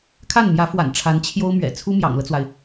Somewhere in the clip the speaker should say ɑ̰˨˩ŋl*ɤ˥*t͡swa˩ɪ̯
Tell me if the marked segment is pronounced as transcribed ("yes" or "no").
no